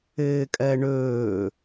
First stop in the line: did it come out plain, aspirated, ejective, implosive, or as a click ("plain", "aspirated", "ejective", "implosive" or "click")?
ejective